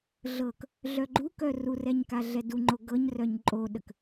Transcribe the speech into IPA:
ɮɤk | ɮœɡ͡ǃukœ rurɛɲ kaɮɛduŋ͡ǃo ɡɤɲ rœɲǃʼoɗək

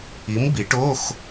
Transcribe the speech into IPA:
i˨˥mbi˨˩˦ʈo˧˥˧x

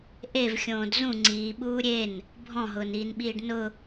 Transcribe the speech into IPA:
ʔevxʲõːd zũ ŋ͡ǀiː ɓuːɾʲen | bʱɔ̃ɦʊːniːnɓiːɖ nʊ

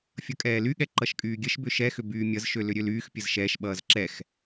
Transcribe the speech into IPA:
fʲʌkʼɛːlyɠɛ ǃʌʃkʼyːɡʲəʃbʏ ʃɛxʏ byːmʲʌzʃø lʏɾʲølyːxpʲəz ʃɛʃɓʌːz ǁɛx

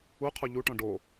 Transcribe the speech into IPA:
uqʰu ʎuʈɔ̃ ɖo

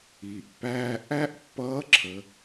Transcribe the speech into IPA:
iː˩ʔpːæː˧ ʔæ˥ʔ pːʌː˧˥ǁʰə˩˧

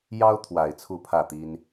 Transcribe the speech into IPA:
jɑ˦ʊ̯ t̪ʰwa˨˩ɪ̯ t͡sʰu˥˨pʰä˥˨t̪i˦n

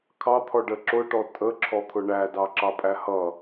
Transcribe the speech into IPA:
kʰɑt̪ʰɔ ɖə ǁʊʈɔ tʼə ǁʰɔt̪ʰʊɳæ dɑǁɑpʼæhʌ

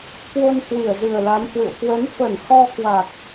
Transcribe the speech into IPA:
kwo˧n hwi˧˩ə̯zɨ˨˩ə̯la˨˦mhwɨ̰˧˨ə̯ kwə˨˦n fə˧˩nhɔ˧ kwa˨˩k̚

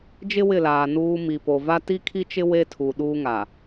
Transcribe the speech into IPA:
d͡ʒɪ˦wɪ˦˨laː˨ nuː˦ mi˨po˨va˦ ti˦kʰi˦t͡ʃɪ˦ we˦tʰu˨ ɗuː˦ŋa˨

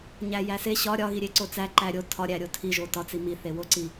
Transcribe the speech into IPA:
ɲæjæse ɕɒ ɾʲɒɣiɾʲe ǀot͡sæ ǃæɾʲo tʰɒɾʲæ ɾʲotʰiʒo tɒt͡si miθe woǀi

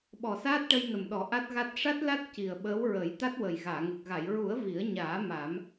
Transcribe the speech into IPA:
ɓɔ˨˩saː˦˥t̚ʈə˧j nə˨˩mɗɔ˨˩˦ ʔa˦˥t̚ɣa˦˥t̚ ʂa˦˥t̚la˦˥t̚ ci˨˩ə̯ɓəː˧˥wɹə˨˩˦j t̪a˦˥t̚wə˨˩j ɣaː˨˩˨ ŋə˨˩k̚ ɣa˨˩˨jɹu˨˩˦ə̯ vi˨˩˦ə̯ɲaː˨˩˦ ma˨˩˦m

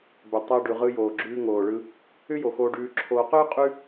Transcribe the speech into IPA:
bʏ˩tˤɛ˨ ɖʉ˩ʁɯ˨joː˩ɡ͡ǁʉː˨ ŋoː˩ɭɯ˨ | ʏ˦jo˩xoː˨ɖʉː˨ ǁʰoː˨qʏː˥qʼʉ˦

